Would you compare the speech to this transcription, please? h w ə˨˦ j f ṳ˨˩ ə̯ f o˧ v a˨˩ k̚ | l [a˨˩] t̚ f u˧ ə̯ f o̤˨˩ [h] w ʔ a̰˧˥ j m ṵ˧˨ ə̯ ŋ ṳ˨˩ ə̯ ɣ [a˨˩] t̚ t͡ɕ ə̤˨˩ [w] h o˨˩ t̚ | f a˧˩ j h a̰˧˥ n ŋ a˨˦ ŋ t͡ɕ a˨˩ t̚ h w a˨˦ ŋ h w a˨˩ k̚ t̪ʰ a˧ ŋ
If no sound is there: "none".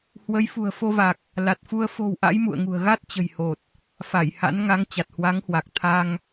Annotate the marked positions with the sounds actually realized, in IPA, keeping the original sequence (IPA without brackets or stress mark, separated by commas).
a˨˩, none, a˦˥, j